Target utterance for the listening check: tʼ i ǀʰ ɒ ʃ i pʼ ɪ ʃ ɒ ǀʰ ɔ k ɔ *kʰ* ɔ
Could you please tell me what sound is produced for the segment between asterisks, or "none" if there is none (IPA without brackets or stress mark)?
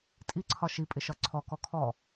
kʰ